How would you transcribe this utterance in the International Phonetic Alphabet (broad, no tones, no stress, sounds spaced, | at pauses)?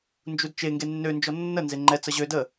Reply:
n d͡ʒ u d t͡ʃ e ŋ ɡ e nː ø n d͡ʒ ɔ nː ə n z e ŋ͡ǃ ɛ t͡s ə ʑ ø d ə